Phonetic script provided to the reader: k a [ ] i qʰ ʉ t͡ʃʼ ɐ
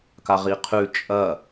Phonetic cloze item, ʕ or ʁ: ʁ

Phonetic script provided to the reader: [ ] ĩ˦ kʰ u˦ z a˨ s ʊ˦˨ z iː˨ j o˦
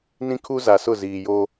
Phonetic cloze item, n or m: n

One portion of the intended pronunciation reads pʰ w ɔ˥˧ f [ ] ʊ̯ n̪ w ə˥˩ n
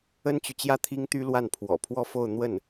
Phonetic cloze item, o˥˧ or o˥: o˥˧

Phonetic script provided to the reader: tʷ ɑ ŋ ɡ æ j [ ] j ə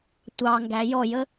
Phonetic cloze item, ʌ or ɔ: ɔ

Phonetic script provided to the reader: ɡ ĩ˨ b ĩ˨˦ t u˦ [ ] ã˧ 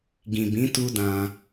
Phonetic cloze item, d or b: d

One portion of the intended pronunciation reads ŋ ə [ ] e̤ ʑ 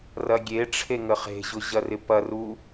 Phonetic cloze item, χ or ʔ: χ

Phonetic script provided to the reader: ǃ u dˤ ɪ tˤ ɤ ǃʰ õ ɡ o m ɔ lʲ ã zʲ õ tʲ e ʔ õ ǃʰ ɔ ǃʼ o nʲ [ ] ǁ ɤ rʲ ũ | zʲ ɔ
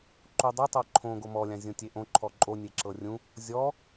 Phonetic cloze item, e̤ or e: e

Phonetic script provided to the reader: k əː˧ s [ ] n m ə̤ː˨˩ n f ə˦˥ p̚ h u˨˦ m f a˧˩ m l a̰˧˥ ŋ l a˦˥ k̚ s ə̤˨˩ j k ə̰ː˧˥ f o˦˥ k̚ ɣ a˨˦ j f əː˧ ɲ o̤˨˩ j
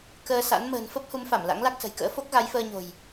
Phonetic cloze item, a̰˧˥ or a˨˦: a̰˧˥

